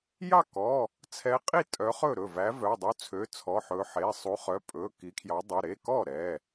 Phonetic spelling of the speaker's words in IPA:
j ɑ˥˩ k ɔ˩˧˩ | t͡sʰ ɛ˨˦ qʼ i˥˩ tʼ œ˨˦ χ ɵ˥˩ ɾ ɵ˥˩ v æ˨˦ v œ˩˧˩ dˤ u˨˦ t͡sʰ ø˩˧˩ t͡sʰ ɔ˩˧˩ ħ ɵ˨˦ ħ e˩˧˩ sˤ u˨˦ χ œ˩˧˩ pʼ ɵ˩˧˩ k i˨˦ kʰ j ɑ˨˦ dˤ u˩˧˩ ɾ e˩˧˩ k ɔ˥˩ ɾ ɛ˩˧˩

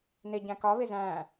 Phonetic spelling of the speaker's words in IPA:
n ɪ ɟ æ̃ k ɒ β ɪ z æ̃

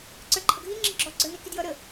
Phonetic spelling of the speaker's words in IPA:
ǀ ə˞ ǃʰ ʌ ɡʱ i ŋ͡ǁ i ɡ͡ǁ ɔ ɡ͡ǀ ə˞ n i k i d j ʌ ɾ ə

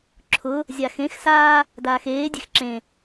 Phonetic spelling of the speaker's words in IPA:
ǁʰ ʊ | zʲ a x ẽ x s aː | d aː x eː dʲ e̤ x ǁ ẽ

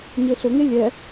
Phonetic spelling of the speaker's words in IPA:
ɲ e ɬ ʊ ŋ e lʲ ɛ

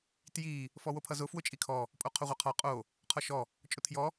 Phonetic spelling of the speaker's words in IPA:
t j i | f ɔ w o pʰ ʌ z ʊ f w ʊ t͡ʃʼ i kʰ ɔ | pʼ o qʰ o ʁʷ ʌ qʰ ɔ qʼ o | qʰ ɔ ʃ ɔ | t͡ʃʼ ʊ tʰ j ɔ

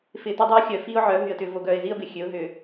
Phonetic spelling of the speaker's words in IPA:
f ɪː˨ t o˦ dˤ ɪː˦ ʊ̯ xʲ œː˨ f iː˦ ʊ̯ ʕ œː˨˦ ɦ y˨ ə̯ t ʏː˨ v o˨ ɡ œː˨ ɪ̯ z i˦ ə̯ b ɪ˨ xʲ ø˨˦ ʊ̯ ɦ ʏː˨

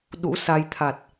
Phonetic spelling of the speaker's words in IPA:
ɗ ṵ˧˥ s a˧ j t̪ʰ a˨˩ t̚

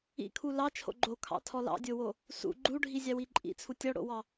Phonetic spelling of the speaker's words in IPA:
ḭ kʰ u l ɑ t͡ʃʰ o̰ ɡ͡ǃ o kʰ ɑ̰ tʰ ɔ l ɑ̰ dʲ o w o | s ṵ ɡ͡ǃ u ɖʱ i zʲ ɑ w i ǃʼ ḭ t͡sʰ u tʲ ɔ ɽ o̰ w ɑ

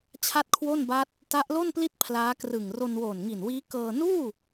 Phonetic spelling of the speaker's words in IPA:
t͡ɕʰ a˥˩ t̚ kʰ w o˥˩ n b a˦˥ t̚ | t a˦˥ ʔ l o˥˩ n p l i˥˩ t̚ pʰ l aː˦˥ k r ɯ˨˩ ŋ r o˧ n w oː˨˩ n ŋ i˨˩ n w iː˦˥ k ɤː˧ n uː˥˩

